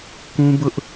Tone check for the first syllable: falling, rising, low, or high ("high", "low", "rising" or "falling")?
high